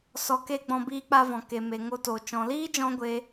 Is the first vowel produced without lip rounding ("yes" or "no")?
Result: no